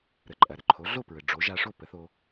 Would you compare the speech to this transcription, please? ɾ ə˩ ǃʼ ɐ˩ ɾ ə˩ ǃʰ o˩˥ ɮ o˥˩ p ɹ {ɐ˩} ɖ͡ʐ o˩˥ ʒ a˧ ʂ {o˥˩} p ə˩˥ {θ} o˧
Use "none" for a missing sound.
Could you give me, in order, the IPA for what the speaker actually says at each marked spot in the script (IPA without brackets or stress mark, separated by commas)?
ə˩, o˥˩, θ